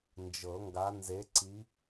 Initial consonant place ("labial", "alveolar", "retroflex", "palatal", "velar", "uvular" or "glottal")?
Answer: alveolar